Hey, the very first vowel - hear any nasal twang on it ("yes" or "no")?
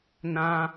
yes